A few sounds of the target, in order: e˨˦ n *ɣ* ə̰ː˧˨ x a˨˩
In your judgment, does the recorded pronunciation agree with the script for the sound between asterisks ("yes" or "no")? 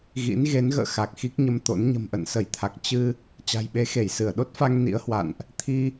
yes